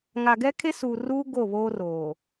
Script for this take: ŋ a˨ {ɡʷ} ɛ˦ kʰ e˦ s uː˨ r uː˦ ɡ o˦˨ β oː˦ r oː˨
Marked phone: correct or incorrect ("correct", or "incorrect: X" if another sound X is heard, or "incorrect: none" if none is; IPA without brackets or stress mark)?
incorrect: ɡ